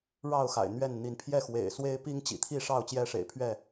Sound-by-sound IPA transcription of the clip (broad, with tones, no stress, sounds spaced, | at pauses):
ɻ ɑ˥˨ ʊ̯ x a̰˨˩ ɪ̯ n̪ ɥ ɛ˥˨ n n̪ i˨˦ n pʰ j ɛ˥˨ x w ḛ˨˩ ɪ̯ s w e˦ ɪ̯ p i˦ ŋ t͡ɕ ḭ˨˩ t̪ʰ i˥˨ ʂ ɑ˥˨ ʊ̯ t͡ɕ j ɛ˦ ʂ ḛ˨˩ ɪ̯ pʰ ɥ ɛ˥˨